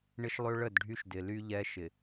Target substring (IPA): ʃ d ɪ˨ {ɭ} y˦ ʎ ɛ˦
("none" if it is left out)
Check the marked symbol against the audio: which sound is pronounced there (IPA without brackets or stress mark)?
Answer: l